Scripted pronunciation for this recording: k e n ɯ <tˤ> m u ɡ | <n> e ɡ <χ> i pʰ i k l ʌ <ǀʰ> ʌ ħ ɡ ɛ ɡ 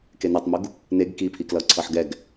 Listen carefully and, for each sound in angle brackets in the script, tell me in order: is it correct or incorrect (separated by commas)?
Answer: correct, correct, incorrect, correct